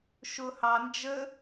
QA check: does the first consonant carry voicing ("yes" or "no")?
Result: no